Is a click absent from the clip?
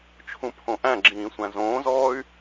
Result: no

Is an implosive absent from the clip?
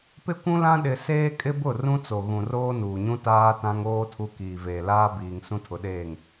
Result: no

